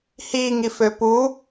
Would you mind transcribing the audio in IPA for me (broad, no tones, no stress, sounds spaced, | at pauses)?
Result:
h i ŋ i f ø p u